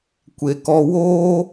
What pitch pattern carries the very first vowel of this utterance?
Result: low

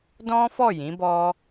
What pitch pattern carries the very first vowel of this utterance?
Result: high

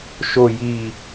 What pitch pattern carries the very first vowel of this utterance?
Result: low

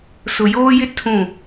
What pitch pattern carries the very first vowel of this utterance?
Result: low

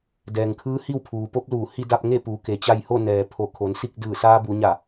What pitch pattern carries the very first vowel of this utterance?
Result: low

